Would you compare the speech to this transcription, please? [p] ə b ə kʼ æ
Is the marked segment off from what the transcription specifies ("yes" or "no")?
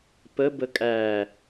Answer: no